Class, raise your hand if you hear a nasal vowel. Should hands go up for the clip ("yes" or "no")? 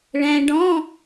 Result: yes